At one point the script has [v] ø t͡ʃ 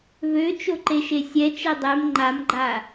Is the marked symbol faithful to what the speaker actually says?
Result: yes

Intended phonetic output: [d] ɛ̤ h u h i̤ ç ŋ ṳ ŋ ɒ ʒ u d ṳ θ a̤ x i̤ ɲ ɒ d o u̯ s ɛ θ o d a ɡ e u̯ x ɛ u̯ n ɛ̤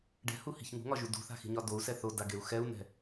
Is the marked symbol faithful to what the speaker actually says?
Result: no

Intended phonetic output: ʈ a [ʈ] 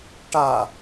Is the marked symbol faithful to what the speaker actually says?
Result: no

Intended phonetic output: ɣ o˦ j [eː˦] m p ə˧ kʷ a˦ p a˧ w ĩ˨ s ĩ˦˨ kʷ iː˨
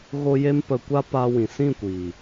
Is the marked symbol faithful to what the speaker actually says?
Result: no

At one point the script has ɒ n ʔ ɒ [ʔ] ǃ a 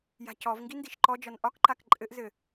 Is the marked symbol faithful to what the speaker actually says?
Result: no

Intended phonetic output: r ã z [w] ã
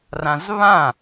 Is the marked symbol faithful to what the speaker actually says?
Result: no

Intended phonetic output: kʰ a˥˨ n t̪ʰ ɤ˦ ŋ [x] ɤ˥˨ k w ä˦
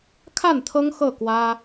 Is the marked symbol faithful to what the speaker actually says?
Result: yes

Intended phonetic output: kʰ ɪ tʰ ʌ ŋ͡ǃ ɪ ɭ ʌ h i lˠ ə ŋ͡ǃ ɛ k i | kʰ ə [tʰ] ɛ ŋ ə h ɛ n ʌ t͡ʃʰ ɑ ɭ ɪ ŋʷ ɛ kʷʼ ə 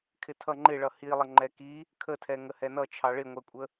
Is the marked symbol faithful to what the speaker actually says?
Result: yes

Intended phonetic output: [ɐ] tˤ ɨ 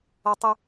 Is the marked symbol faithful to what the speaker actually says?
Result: yes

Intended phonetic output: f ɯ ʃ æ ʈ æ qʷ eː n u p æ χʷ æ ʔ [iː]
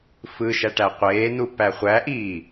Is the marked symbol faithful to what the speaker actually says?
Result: yes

